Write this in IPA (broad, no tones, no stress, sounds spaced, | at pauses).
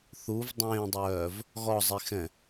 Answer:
θ u v dˤ ẽː dˤ œː v | ɣ ɔ zˤ i x ɛ̃